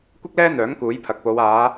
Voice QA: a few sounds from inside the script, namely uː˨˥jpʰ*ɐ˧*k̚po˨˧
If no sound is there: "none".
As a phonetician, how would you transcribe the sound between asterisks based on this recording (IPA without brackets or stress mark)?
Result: ɐ˨